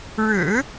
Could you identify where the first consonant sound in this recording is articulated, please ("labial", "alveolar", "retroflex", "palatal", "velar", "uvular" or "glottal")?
retroflex